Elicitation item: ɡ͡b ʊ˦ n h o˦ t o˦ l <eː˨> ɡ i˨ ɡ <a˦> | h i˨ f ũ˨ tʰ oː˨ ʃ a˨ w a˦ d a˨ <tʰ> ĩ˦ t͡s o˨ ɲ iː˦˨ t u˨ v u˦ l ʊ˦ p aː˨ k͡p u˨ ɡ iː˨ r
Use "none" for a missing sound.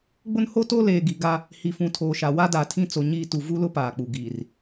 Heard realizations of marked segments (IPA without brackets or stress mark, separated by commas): eː˨, a˦, tʰ